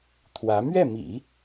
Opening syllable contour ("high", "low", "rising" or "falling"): rising